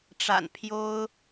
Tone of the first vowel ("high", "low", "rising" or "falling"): low